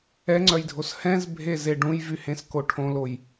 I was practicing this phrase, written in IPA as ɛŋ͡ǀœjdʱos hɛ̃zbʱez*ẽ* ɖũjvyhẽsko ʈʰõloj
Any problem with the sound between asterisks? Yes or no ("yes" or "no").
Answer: yes